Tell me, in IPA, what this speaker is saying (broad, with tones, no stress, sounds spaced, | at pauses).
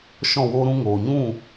ʃ ɔ̃˦˨ w oː˦ ɾ ũ˧ ŋ oː˨ ɲ ũ˦˨